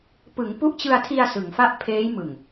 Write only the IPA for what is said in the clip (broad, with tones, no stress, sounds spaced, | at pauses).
p ɯ˩˦ ŋ p u˦˥ ʔ t͡ɕ ɯ˧ a̯ tʰ i˧ a̯ s ɯ˩˦ ŋ f a˥˩ ʔ pʰ eː˦˥ j m ɯ˨˩ ŋ